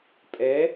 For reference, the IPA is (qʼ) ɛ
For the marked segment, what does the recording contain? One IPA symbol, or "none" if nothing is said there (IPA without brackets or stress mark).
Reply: pʼ